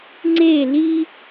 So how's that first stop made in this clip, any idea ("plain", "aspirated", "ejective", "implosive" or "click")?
click